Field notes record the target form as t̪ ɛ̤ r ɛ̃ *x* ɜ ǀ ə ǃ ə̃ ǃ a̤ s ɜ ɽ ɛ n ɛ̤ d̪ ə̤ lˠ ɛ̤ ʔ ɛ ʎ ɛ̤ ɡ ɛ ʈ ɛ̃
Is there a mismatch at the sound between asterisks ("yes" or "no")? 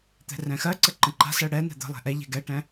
no